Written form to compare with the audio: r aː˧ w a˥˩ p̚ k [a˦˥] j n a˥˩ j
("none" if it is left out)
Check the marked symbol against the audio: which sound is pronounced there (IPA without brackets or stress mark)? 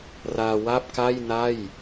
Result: a˥˩